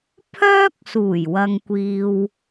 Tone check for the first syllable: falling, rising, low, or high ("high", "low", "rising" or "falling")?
high